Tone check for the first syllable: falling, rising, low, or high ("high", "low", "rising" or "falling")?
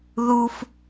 high